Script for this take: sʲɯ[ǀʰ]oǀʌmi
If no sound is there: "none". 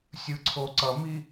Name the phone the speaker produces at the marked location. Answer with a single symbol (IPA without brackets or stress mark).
ǀʰ